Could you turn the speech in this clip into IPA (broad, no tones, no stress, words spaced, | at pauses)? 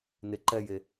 ne ǃɛje